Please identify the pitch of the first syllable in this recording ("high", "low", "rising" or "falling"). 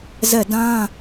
falling